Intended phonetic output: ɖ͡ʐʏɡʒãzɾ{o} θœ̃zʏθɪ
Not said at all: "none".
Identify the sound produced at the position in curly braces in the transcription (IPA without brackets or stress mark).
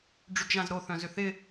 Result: o